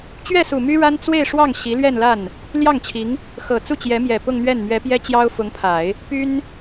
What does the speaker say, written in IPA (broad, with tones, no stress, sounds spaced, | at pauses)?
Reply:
t͡ɕ ɥ ɛ˥˩ s u˨˩ m y˥ ɻ a˥ n t͡s w e˥˧ ɪ̯ ʂ w ɑ˥˩ ŋ ɕ i˧˥ l ɥ ɛ˥˧ n l a˥˩ n | l j ɑ˥˩ ŋ t͡ɕʰ i˧˥ ŋ | x ɤ˨˩ t͡s u˥˩ t͡ɕ j ɛ˧˥ m j ɛ˨˩ p ʊ˥˧ ŋ n̪ ɥ ɛ˥˩ n m ɥ ɛ˧˥ p j ɛ˥ t͡ɕ j ɑ˥ ʊ̯ f ʊ˧˥ ŋ pʰ a˨˩˦ ɪ̯ | p y˥ n